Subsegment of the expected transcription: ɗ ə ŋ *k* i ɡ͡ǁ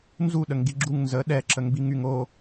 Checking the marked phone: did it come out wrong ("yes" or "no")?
yes